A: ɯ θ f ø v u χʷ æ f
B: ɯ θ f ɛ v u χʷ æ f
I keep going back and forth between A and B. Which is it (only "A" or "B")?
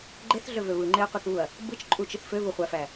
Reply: A